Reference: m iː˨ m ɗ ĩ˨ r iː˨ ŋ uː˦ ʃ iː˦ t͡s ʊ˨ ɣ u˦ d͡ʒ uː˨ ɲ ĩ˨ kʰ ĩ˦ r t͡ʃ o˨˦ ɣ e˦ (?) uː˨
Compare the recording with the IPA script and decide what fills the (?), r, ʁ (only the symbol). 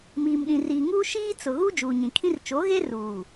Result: r